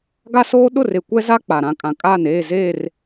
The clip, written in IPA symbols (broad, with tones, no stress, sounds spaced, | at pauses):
ɡ a˦ s oː˦ ɗ ʊ˦˨ r e˨ kʷ ɛ˦ z a˦ k͡p a˨ ɾ ã˦ kʼ ã˨ kʼ aː˦˨ n eː˦˨ z eː˦˨ r